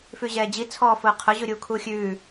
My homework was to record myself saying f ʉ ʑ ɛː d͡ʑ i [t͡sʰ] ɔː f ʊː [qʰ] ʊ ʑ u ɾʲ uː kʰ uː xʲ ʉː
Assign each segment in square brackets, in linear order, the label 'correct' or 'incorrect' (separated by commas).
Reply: correct, correct